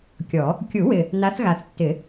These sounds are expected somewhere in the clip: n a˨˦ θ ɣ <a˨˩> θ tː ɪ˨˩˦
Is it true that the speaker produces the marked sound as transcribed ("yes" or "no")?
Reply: yes